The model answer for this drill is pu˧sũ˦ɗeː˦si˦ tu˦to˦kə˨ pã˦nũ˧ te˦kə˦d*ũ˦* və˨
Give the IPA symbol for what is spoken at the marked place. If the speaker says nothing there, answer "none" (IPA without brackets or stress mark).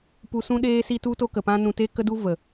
u˦